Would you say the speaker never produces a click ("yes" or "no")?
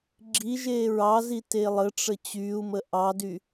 no